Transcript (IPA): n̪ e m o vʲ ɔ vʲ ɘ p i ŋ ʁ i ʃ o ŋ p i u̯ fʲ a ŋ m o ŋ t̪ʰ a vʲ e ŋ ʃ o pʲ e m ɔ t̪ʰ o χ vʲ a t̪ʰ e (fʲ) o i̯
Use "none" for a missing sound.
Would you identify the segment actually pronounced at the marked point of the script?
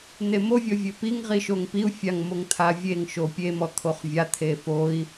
f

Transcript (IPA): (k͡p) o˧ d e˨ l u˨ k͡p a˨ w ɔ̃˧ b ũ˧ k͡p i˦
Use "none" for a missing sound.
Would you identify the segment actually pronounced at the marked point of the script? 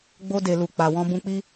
ɡ͡b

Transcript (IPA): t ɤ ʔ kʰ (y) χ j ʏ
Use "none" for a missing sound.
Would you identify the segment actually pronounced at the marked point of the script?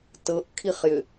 i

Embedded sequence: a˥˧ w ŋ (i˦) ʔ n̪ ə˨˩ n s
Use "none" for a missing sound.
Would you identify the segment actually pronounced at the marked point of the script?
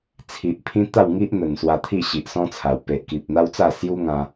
i˦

